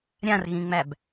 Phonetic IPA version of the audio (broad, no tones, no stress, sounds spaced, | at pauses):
ɾʲ ã r ɣ ĩ ŋ͡m æ b